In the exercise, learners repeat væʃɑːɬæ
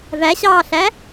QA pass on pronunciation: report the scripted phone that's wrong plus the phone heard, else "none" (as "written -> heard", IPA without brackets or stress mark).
ʃ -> ɕ